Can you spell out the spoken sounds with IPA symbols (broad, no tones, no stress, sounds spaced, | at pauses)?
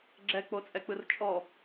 ɡ͡ǁ ɛ k͡p o t͡sʼ ɛ k͡p ɯ r t͡ʃʼ ɔ